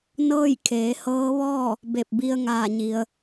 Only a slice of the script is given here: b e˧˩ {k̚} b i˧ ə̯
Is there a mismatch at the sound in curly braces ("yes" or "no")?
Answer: yes